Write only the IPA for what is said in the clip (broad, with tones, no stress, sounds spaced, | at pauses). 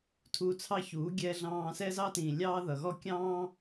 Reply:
tʰ uː˧ t͡sʰ ɑ˦ ç uː˨˦ ɡʲ ɛː˦ ɮ ɑ̃ː˦ s ɛ˦ z ɑ˦ t ĩː˨ lʲ ɑː˦ ð ʌ˧ ɣ ɔ˦ kʲ ɑ̃ː˦